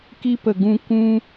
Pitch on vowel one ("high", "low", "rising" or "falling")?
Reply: high